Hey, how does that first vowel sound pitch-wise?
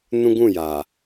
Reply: high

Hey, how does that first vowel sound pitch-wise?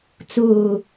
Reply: low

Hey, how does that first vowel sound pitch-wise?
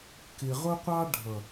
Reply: low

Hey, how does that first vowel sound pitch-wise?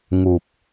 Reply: low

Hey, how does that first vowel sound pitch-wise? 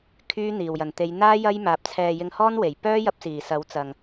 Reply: high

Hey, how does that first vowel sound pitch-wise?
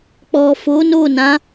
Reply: low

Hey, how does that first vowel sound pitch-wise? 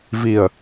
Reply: low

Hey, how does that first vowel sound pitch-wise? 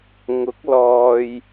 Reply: rising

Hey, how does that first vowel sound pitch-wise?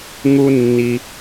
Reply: high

